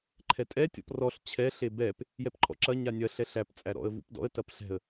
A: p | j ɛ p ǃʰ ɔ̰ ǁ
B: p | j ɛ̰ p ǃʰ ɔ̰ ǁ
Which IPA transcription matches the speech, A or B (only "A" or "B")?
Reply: A